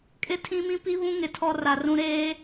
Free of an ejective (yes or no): no